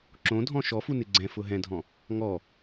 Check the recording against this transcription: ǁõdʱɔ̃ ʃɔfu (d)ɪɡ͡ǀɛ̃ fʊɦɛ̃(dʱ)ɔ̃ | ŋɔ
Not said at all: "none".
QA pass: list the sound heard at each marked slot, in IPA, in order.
n, dʱ

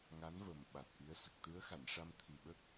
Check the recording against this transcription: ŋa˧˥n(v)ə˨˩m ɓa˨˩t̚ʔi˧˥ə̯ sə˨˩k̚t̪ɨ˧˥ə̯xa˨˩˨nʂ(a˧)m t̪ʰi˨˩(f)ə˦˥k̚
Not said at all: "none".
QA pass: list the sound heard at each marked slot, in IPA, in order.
v, a˧, ɓ

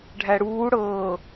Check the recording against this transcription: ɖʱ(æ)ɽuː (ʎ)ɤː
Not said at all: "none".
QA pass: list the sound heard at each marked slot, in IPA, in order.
æ, ɽ

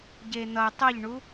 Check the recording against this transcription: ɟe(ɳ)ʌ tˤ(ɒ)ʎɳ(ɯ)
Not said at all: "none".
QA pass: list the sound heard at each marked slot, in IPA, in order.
n̪, ʌ, u

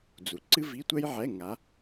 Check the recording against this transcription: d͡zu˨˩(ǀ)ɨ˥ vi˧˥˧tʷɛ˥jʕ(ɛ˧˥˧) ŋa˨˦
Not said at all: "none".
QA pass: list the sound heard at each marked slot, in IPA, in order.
ǀ, ɛ˧˥˧

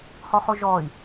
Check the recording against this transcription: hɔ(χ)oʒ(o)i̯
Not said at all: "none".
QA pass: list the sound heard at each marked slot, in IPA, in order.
χ, ɔ

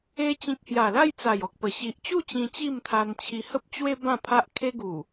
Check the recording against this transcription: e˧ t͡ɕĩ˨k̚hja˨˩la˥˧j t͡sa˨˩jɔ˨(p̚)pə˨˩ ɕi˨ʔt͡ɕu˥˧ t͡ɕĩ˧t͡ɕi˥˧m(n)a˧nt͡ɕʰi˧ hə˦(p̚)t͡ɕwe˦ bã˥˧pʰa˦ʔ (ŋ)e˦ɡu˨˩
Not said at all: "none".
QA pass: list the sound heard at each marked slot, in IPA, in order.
k̚, t̪ʰ, p̚, kʰ

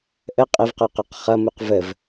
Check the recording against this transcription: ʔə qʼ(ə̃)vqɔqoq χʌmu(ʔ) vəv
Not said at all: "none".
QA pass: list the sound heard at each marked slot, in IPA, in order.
ə, q

